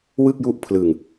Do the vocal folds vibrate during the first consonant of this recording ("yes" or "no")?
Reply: yes